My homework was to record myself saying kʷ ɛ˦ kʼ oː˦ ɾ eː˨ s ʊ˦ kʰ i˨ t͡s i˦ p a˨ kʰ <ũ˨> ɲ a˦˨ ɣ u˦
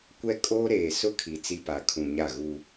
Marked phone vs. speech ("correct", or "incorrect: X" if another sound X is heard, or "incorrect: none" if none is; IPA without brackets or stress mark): correct